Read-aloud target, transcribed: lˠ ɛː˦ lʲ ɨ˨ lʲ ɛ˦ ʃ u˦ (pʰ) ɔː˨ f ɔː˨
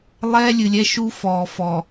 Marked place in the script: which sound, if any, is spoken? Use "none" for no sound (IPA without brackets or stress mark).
f